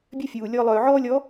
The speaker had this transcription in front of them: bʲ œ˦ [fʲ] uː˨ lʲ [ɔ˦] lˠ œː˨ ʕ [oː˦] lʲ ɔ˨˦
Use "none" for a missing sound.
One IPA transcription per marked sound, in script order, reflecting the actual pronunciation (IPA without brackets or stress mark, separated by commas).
fʲ, ɔ˦, ɔː˦